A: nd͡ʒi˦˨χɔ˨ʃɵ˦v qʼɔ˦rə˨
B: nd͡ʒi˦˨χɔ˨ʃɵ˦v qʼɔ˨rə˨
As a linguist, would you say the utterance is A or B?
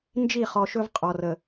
B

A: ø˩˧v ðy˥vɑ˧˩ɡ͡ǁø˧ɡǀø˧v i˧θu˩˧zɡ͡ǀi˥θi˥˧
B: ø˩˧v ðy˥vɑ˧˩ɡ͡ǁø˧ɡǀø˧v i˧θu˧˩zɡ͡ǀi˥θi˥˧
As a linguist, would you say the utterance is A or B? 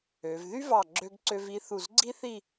B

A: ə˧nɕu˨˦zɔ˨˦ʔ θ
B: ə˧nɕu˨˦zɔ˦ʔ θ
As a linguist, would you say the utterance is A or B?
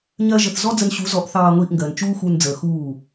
A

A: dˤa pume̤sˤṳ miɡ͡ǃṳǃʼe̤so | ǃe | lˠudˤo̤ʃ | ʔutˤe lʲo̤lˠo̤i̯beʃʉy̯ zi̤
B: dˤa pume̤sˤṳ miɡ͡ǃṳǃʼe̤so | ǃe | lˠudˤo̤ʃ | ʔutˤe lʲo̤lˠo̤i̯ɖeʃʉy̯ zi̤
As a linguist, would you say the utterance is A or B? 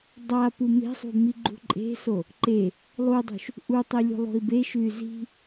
A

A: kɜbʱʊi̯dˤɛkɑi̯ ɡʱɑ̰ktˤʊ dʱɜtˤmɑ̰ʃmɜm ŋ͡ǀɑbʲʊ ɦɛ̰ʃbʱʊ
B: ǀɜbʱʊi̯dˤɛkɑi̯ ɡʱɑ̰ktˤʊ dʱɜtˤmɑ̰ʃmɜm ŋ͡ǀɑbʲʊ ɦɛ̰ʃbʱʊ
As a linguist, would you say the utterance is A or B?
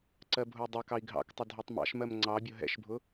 B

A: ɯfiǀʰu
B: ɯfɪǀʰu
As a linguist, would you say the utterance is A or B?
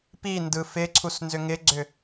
B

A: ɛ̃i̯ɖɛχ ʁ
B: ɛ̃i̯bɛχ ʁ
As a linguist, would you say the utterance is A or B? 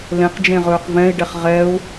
A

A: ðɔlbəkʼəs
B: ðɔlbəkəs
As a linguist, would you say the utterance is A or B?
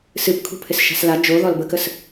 B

